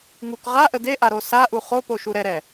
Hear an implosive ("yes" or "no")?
no